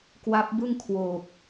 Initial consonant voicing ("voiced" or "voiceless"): voiceless